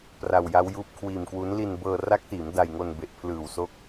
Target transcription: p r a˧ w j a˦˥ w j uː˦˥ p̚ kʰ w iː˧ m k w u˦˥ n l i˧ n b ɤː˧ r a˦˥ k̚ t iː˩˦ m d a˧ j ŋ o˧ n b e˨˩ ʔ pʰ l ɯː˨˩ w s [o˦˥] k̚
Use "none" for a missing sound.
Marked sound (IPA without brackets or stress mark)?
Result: o˦˥